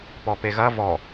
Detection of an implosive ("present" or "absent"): absent